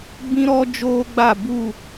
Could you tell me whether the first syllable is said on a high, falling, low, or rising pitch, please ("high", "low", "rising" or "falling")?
high